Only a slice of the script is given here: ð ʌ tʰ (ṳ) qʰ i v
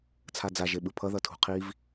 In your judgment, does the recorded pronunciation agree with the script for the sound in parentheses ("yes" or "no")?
yes